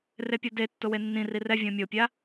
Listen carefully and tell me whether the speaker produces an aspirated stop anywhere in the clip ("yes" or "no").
no